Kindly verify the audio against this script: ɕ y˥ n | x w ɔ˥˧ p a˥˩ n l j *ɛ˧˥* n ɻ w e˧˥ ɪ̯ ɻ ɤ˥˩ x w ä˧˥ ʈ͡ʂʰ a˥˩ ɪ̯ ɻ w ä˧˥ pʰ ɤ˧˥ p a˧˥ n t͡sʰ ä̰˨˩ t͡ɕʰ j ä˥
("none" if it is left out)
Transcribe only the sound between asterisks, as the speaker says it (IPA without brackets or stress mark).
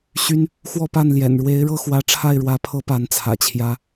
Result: ɛ̰˨˩